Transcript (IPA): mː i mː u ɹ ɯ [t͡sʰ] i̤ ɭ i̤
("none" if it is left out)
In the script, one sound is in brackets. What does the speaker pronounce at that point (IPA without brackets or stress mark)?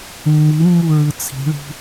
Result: t͡sʰ